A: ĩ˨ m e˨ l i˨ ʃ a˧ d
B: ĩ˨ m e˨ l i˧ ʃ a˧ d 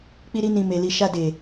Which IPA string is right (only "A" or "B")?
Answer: A